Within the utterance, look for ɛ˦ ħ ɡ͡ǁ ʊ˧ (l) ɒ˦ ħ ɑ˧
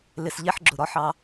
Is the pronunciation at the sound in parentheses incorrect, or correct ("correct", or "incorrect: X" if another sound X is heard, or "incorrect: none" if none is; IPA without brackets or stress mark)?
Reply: incorrect: ɾ